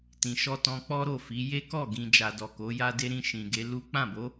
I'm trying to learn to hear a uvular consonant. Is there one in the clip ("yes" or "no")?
no